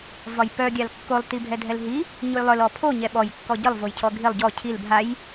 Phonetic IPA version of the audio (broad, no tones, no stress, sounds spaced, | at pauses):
v ɒ j p œ ɡʲ a l kː o lˠ t i bʱ ɛ dʱ ɛ l ɦ i | ɲ o j lˠ œ l ɔ pʰ o ɲ ɛ ɓ ɔ j kː ɔ ɟ ə lˠ v o j cʰ ɔ ɡʱ i lˠ ɟ ɔ cʰ i l bʱ a j